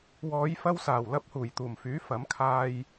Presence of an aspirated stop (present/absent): present